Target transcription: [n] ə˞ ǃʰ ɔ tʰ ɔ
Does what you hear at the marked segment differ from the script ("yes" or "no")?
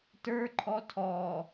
yes